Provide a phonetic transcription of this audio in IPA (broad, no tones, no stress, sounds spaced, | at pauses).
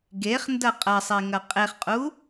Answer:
ɡ e χ n d ɐ qʼ ɐ sˤ i ŋ ɐ qʼ e χ qʼ u